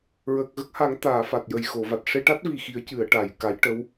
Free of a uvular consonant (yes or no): yes